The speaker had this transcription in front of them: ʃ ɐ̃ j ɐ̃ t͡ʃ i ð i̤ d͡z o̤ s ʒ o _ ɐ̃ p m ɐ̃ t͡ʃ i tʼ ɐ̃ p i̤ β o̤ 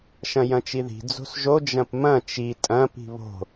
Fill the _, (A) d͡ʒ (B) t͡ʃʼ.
A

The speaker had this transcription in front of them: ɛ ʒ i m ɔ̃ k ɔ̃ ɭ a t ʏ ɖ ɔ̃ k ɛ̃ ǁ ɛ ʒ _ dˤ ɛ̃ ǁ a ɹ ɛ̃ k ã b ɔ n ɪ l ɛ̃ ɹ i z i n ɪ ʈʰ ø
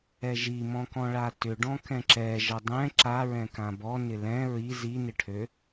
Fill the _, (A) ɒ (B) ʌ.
B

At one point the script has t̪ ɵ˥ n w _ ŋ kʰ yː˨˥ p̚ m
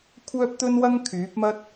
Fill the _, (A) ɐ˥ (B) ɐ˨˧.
A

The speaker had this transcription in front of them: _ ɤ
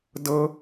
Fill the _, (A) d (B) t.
A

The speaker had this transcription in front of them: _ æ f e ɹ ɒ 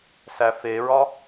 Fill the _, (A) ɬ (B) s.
B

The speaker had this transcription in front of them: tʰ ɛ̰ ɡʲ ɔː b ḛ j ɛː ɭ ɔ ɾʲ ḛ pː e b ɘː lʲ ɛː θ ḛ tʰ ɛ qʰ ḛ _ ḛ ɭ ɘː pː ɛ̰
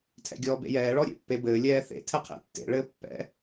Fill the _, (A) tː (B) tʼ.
A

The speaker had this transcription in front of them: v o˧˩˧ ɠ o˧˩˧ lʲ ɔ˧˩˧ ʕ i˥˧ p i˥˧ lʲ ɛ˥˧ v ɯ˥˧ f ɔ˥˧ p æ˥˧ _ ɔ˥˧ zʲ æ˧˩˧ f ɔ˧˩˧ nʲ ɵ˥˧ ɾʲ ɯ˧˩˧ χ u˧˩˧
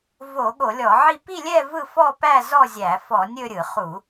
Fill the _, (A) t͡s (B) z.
B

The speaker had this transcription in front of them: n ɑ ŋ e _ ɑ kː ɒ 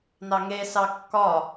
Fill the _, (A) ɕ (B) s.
B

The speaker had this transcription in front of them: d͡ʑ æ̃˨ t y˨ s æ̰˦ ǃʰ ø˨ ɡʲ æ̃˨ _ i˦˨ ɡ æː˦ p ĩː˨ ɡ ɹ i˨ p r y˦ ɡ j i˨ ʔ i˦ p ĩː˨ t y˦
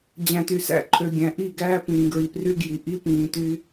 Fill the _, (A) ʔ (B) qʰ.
A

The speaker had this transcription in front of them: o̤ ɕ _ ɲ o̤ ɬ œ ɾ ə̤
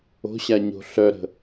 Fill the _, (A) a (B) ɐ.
A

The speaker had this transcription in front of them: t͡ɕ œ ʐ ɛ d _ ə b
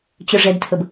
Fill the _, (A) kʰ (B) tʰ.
B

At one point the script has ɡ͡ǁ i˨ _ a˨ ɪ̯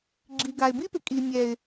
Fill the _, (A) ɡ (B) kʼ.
A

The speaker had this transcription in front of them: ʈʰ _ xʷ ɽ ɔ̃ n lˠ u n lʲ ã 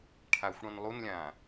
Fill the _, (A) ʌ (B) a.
B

